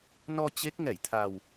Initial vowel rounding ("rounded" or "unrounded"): rounded